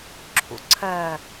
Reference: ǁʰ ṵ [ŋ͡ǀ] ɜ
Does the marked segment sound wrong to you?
yes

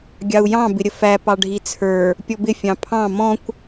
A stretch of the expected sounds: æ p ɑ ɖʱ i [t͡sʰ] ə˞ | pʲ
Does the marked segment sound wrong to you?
no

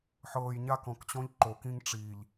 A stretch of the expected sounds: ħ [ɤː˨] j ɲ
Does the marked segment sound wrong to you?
no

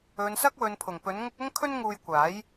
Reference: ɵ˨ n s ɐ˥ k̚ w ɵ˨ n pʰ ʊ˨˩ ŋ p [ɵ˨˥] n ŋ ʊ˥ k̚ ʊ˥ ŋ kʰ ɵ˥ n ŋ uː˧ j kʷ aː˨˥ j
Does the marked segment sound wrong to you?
no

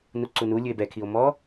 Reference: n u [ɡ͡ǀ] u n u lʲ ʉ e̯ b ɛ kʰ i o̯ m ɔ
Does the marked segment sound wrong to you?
yes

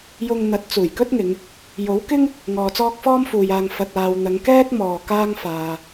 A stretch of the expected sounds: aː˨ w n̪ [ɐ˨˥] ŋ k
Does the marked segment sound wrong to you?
yes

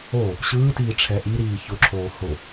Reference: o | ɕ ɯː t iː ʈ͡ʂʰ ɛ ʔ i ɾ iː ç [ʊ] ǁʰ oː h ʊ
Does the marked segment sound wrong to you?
no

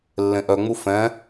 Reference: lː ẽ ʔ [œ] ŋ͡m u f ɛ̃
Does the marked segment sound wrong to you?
no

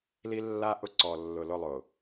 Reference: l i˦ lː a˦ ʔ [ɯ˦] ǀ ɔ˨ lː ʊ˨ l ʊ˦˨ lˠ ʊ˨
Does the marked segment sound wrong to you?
yes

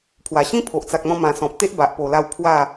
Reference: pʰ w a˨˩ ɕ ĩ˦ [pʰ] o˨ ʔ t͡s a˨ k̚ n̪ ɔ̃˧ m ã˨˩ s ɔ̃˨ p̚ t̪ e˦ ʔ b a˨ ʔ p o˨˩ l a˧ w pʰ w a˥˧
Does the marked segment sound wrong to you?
no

